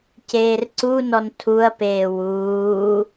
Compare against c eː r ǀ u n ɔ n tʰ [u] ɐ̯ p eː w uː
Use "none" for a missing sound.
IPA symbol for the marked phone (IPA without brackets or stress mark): u